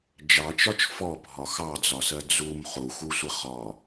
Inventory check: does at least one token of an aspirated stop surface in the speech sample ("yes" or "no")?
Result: no